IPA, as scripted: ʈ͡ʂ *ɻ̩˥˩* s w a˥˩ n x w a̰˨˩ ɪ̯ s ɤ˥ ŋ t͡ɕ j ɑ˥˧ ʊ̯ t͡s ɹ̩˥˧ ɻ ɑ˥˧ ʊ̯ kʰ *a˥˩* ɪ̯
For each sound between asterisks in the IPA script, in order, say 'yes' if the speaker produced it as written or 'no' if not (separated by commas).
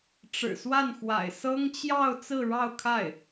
no, yes